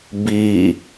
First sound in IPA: b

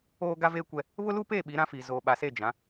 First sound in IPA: oː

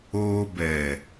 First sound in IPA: oː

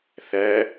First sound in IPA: θ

